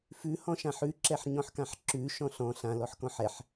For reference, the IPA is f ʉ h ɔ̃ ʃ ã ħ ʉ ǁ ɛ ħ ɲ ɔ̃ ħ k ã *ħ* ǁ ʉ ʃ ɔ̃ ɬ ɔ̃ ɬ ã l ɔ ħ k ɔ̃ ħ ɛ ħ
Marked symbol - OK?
yes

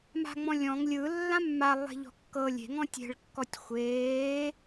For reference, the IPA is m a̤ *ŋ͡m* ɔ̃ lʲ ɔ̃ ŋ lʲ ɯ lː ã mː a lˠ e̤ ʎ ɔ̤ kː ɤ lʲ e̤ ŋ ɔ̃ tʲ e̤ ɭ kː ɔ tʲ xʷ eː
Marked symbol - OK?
yes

